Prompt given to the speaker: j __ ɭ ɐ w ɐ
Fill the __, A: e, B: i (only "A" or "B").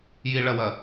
B